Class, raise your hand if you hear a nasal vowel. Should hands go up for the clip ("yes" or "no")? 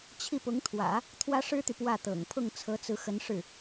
no